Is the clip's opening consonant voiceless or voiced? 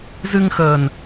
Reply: voiced